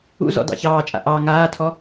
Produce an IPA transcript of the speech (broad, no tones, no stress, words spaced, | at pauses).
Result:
ṵzɔ̰ dɑ̰çɑːt͡ʃʼa̰ ʔɑ ŋaːtʰɔ